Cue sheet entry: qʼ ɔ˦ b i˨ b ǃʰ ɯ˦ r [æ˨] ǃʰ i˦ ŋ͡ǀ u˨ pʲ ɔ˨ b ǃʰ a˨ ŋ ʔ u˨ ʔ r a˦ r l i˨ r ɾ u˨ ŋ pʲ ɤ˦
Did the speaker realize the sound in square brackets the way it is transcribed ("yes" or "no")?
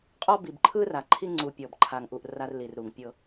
no